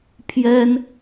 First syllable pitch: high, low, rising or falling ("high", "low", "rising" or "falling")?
high